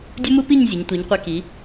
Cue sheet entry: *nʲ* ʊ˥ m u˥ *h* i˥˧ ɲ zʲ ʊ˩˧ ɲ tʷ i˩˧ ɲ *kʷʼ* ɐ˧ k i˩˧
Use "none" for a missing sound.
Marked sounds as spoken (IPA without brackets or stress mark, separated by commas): dʲ, p, qʷ